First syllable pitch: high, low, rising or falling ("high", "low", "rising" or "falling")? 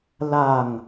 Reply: low